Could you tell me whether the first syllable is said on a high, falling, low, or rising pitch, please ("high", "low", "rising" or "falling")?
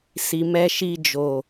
low